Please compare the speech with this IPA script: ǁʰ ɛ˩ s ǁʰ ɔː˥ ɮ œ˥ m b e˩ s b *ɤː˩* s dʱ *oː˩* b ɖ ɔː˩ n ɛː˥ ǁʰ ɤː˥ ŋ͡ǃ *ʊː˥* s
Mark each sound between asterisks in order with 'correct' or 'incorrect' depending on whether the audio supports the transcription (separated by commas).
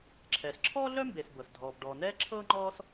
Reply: incorrect, incorrect, incorrect